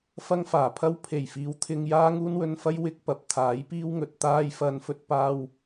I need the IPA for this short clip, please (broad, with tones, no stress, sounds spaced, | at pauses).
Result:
f ɐ˥ ŋ f aː˨˩ pʰ ɐ˥ w pʰ e˨˩ j f iː˨˥ w t̪ʰ ɪ˧ ŋ j aː˥ ŋ uː˥ n w ɵ˧ n f ɐ˥ j w ɪ˥ k̚ p ɐ˨ p̚ t̪ʰ aː˨˥ j p iː˥ w ŋ ɵ˨ t̚ t̪ aː˥ j f ɐ˧ n f ɵ˥ t̚ p aː˥ w